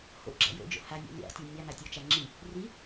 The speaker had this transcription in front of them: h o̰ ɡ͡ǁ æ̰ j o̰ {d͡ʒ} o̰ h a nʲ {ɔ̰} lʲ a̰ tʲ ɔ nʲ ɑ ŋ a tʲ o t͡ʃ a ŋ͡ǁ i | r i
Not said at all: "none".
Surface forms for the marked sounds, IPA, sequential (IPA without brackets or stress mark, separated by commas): d͡ʒ, ɔ̰